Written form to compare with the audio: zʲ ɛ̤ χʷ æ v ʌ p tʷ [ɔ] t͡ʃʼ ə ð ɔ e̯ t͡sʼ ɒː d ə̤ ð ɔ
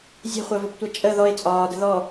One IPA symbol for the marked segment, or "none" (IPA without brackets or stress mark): ɑ